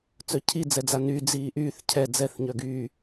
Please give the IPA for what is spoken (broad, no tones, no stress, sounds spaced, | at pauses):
t͡s œ cʰ i d͡z ɛ d͡z a n yː d͡z iː ʔ yː θ cʰ ɛ d͡z ɛ θ ɲ œ ɡ yː